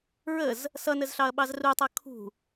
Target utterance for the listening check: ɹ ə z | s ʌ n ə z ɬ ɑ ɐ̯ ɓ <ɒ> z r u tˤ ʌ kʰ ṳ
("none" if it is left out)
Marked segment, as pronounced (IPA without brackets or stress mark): ɑ